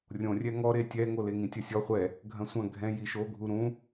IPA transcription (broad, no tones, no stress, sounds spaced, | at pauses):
rʲ õ rʲ ɛ ŋ ɔ ɾ e tʲ ɛ ŋ o l e ŋ ĩ tʲ ɐ sʲ ɔ χʷ ɛ | ɡʱ ɐ̃ sʷ ɐ̃ ɡʱ ɛ̃ j i ʃ o ɡʱ u ɾ ũ